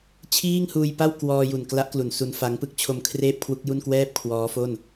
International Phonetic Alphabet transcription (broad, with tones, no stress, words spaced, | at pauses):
t͡ɕʰiː˥˩ŋhuː˧jpa˥˩w kwɔː˧ju˨˩n kla˦˥ʔklu˩˦n su˦˥nfa˦˥ŋ pɯ˥˩k̚t͡ɕʰo˧m kʰreː˥˩p̚kʰwu˦˥k̚ju˥˩n kwɛː˥˩p̚kʰwɔː˦˥fo˥˩n